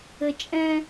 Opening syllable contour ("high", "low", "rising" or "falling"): low